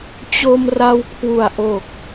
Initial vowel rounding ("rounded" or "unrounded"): rounded